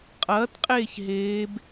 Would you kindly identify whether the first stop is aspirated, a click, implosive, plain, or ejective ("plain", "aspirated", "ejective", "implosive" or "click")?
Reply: ejective